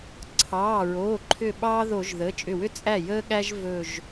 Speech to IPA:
ǀʰ ɑː˩˧˩ ɹ oː˩˧˩ ǃʰ ʏ˧˩ ɓ ɑː˥ ð o˧˩˧ ʒ ð əː˩˧˩ t͡ʃʼ ʏ˧˩ w ʏ˥ t͡sʼ æ˥˩ j əː˥ ɠ æ˥ ʒ v ɵ˧˩ ʒ

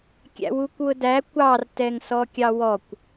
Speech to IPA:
kʲ æ̰ w u kʷ w ʊ d æ kʷ ɑ r t ɛ ŋ s ɔ kʲ ɑ w ɔ kʷ

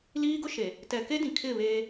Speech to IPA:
l iː˦ ɡ ʊ˦ ʃ e˨ | t ɛ˨ k e˦ d ĩ˨ kʰ ɪ˦˨ β eː˦

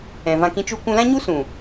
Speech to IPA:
ɛ̃˨ v ã˧ k ĩ˧ t͡ʃ u˧ kʷ ũ˧ l ã˦ ɲ u˦ s ũ˨

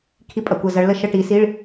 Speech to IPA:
kʰ i˥ pʼ ɐ˧ kʷ ə˥˧ z ɐ˧˥ ɭ l ə˥˧ ʃ ə˥˧ ʈ i˧˥ s i˧˥˧ ɭ

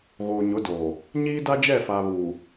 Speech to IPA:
ɣ oː˨ ɲ ʊ˨˦ d oː˨ | ɲ iː˦ d a˦ d͡ʒ ɛ˦˨ f a˨ β uː˨

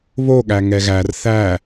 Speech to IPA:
β o ɠ æ ŋ ɛ ɣ æ r θ æ

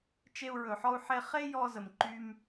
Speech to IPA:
t͡ʃ e˧ u̯ ɹ ɵ˨ ħ ɔ˧ u̯ ħ e˧ χ e˦ j ɔ˧ z ə˨ m ǃ y˧ m

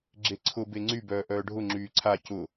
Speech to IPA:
ɡ͡ǁ e ǀʰ ʊ b e ŋ͡ǀ y b œː ʔ œː ɖʱ ʊ ŋ͡ǁ yː ǀʰ a c ʊ

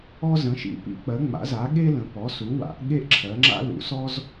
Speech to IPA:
ɔ˦ z ə̃˩˧ ʃ ḭ˩˧ p ḭ˩˧ k͡p ɜ˩˧ ŋ͡m a̰˩˧ z a˩˧ ɠ e˦ l ə̃˩˧ p ɔ˩˧ s u˩˧ w a̰˩˧ ʔ ɠ e˦ ʔ ǁʰ ɜ˩˧ ŋ͡ǁ a̰˦ l ṵ˩˧ s ɔ˦ z

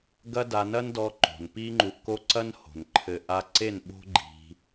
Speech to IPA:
ɡ ɐ˦ d a˧ n ɐ˦ n d ɔ˧ ǃ o̤˨ n p i˦ ŋ͡ǃ u˧ ʔ k o˦ ǀ ɐ˦ n h o̤˨ n ǃʰ ɘ˧ ʔ a˧ ǀ e˦˨ n ɓ o̤˦ ɡ͡ǃ i̤˧

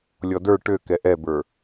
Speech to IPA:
lʲ ɔ d ə˞ ʈ ø k ɛ ʔ ɛ b ə˞

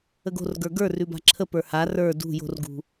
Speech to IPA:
ə ɡ o̤ r ɡ ə˞ ɡ ə˞ r ʉ b a̤ ǁʰ ə p ə˞ h a r ə˞ d ṳ j o̤ r ɡ ṳ

